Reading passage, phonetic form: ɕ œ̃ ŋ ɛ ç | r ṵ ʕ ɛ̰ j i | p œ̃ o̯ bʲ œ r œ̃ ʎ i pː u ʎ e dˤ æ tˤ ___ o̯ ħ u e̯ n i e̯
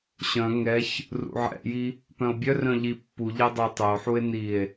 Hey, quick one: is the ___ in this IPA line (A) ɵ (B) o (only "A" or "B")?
A